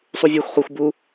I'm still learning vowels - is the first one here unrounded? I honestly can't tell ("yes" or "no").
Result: no